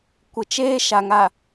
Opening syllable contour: low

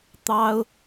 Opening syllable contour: high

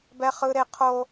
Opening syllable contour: high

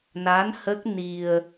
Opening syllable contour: rising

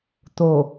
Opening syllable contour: low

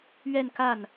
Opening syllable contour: falling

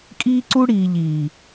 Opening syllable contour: high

